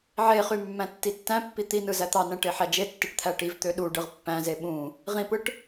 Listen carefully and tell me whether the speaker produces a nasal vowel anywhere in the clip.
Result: yes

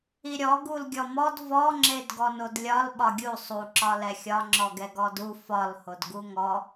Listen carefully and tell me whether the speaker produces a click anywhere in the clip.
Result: yes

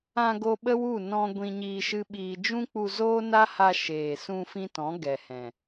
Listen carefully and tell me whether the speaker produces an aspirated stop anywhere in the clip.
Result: no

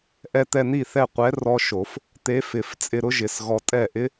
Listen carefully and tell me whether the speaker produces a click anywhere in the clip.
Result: no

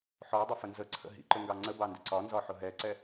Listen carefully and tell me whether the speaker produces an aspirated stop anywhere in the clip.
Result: yes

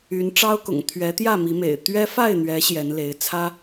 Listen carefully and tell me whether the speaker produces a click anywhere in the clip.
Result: no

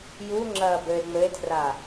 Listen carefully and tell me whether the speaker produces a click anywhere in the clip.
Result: yes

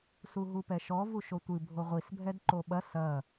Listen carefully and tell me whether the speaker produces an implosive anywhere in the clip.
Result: yes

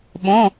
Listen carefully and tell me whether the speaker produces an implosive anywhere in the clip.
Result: yes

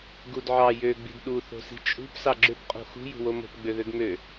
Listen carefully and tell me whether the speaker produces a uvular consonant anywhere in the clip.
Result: yes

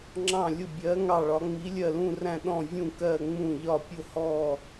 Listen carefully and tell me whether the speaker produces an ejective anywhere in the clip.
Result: no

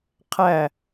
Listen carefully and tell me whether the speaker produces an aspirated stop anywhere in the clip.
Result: yes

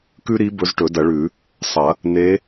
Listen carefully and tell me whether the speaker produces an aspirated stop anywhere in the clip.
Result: no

